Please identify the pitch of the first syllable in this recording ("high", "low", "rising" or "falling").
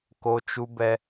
high